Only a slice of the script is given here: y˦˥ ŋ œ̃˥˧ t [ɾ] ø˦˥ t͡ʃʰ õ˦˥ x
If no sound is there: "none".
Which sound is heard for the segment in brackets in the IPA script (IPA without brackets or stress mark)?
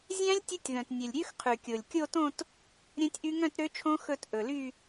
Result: ɾ